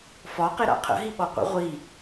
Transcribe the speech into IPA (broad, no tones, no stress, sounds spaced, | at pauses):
f ɒ q e ɾ a̰ qʰ ə̰ ɦ i ɓ ɔ qʷ ə̰ ʁʷ i